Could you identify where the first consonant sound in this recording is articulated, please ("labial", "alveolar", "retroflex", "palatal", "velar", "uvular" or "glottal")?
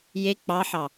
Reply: palatal